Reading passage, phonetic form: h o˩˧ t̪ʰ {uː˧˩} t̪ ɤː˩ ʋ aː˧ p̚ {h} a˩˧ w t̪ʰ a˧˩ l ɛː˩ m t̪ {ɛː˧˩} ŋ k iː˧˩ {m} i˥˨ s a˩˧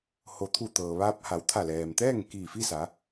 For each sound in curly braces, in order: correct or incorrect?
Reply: incorrect: u˧˩, correct, incorrect: ɛː˥˨, incorrect: f

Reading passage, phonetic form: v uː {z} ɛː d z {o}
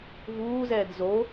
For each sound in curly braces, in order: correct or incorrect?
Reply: correct, correct

